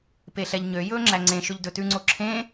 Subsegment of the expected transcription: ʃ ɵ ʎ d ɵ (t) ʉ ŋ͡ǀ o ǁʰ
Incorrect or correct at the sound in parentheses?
correct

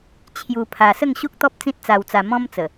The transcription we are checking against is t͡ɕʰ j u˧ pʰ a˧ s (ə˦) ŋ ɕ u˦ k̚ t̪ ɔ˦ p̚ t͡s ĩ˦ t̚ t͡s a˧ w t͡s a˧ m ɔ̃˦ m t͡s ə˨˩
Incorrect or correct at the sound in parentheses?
incorrect: ə˥˧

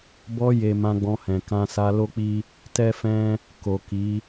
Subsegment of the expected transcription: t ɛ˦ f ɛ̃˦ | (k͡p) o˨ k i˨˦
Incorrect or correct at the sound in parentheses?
incorrect: k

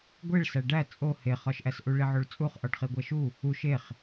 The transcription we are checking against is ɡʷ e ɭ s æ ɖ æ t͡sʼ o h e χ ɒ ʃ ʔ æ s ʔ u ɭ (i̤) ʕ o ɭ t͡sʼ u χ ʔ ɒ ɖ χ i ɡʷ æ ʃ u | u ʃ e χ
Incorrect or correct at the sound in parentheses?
incorrect: i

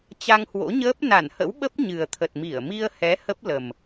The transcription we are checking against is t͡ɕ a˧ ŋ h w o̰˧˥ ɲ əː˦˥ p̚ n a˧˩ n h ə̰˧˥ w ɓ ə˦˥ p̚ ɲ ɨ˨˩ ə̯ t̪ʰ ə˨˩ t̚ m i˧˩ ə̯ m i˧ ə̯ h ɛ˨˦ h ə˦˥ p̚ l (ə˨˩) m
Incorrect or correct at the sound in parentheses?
correct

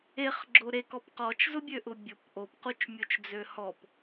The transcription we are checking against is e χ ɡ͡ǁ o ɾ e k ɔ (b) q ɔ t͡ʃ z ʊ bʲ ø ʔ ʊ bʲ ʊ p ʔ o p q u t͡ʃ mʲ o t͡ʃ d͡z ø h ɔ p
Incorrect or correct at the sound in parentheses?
incorrect: p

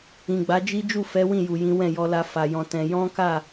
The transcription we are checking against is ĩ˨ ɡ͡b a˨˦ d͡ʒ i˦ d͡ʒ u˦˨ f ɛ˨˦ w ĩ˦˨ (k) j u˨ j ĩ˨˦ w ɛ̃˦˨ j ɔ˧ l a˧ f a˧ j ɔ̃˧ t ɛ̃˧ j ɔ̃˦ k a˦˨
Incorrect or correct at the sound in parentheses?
incorrect: none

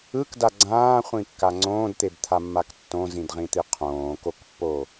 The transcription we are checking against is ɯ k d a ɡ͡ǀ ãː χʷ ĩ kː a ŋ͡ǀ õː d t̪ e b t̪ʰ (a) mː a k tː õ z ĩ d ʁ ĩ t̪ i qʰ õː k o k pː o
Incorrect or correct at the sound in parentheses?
correct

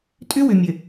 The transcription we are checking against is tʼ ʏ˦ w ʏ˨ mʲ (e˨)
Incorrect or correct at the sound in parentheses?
incorrect: ɘ˨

